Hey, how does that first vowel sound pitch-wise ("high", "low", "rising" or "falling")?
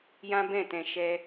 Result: high